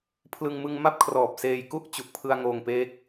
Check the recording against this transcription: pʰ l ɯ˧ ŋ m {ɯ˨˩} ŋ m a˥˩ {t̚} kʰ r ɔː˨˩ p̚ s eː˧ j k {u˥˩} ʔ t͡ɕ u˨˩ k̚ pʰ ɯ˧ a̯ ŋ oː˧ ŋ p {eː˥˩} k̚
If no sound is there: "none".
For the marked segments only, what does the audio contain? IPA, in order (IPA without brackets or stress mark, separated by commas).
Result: ɯ˧, p̚, u˥˩, eː˦˥